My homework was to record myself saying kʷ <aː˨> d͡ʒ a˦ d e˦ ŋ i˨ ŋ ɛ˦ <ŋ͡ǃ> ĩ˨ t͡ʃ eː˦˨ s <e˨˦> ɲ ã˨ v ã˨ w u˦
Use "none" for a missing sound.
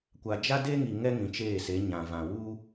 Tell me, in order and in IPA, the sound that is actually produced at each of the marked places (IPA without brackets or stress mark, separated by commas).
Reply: a˨, ŋ, e˨˦